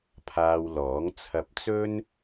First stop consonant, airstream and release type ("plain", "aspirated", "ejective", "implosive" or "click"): aspirated